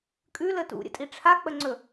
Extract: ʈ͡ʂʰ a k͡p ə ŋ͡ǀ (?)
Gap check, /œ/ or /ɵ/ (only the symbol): ɵ